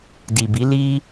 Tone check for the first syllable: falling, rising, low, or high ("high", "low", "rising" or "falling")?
low